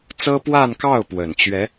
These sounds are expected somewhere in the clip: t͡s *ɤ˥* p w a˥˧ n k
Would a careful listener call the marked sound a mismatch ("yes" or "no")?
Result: no